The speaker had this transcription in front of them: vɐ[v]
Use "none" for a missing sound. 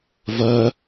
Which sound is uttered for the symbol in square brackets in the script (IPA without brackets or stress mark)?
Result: none